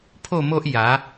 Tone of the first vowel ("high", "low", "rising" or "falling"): falling